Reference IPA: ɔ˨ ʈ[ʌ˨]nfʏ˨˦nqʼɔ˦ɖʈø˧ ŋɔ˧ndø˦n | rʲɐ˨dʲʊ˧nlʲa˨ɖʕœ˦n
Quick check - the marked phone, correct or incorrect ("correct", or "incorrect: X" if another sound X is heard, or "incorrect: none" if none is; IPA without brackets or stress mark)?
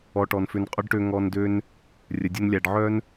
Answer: incorrect: ɔ˨